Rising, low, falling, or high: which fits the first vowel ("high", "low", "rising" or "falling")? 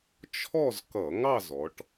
falling